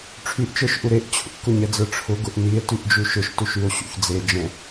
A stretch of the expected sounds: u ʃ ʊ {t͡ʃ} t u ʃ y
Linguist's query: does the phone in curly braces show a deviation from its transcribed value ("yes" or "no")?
yes